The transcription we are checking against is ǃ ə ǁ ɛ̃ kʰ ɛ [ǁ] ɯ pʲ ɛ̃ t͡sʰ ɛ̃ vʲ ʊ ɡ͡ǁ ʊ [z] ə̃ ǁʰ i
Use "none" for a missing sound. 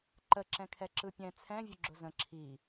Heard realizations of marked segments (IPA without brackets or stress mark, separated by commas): ǁ, z